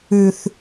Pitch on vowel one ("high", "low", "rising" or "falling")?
high